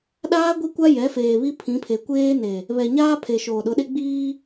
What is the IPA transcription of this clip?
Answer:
ɗ aː˦ ɡʷ i˦ kʷ a˦ j ɛ˨˦ f eː˨ β i˦ pʰ ĩ˨˦ pʰ e˨ kʷ eː˦ n e˨ | β ɛ˨ ɲ aː˦ pʰ e˨ ʃ oː˨ ɗ ʊ˨˦ ɗ e˦ ɡ͡b iː˦

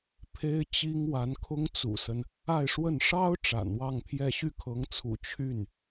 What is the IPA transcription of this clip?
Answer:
pʰ e˥ ɪ̯ t͡ɕ i˥ ŋ w a˧˥ n kʰ ʊ˥ ŋ t͡s ṵ˨˩ s ə˦ n | a˥˧ ɪ̯ ʂ w ə˥˩ n ʂ ɑ˥ ʊ̯ ʈ͡ʂ a̰˨˩ n w ɑ˥˧ ŋ pʰ j ɛ˥˧ ɕ y˥˩ kʰ ɤ˧˥ ŋ t͡sʰ ṵ˨˩ t͡ɕʰ y˥˩ n

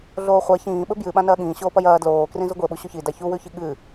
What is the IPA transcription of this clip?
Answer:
ɮ oː χʷ a ç ĩː ɓ ɵ b j ɨ ɓ ã n ɐː ɠ ĩː ɕ oː p ɐ j ɐː d l oː k r ĩ z u ɡʷ e ɓ u ɕ o ç i d a ç u w ʉ ç i ɠ ɨ

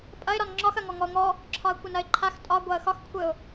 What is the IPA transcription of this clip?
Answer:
pʼ ɐ ɪ̯ ɾ ɒ n ŋ͡ǁ ɒ x ɐ ŋ ɔ ŋ ɔ ʊ̯ ŋ ɔ | ǁʰ ɒ ə̯ kʷ ɘ n ɐ ɪ̯ ǃʰ a x tʼ ɒ ɡʷ a ə̯ x ɒ x kʷʰ ɘ ʊ̯

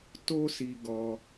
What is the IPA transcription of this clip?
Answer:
t o˦ s i˧ ɡ ɔ˧

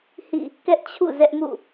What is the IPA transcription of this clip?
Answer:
h ḭ˦˨ | k ɛ˦ ʔ t͡ɕʰ ṵ˦˨ z ɛ˦ ʔ m ṵ˦˨

